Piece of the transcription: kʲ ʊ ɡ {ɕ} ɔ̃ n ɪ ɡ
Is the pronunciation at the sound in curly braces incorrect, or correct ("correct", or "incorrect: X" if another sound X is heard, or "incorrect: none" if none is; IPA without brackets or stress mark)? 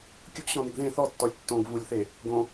correct